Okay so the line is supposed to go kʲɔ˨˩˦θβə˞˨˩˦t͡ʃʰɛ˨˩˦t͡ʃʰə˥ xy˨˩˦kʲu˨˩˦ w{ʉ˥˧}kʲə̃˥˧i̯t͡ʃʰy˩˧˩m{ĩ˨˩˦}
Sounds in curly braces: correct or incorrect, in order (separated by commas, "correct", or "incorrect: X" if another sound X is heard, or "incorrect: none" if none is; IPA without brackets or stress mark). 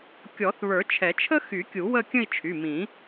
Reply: incorrect: ə˥˧, correct